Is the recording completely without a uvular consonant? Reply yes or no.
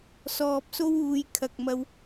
yes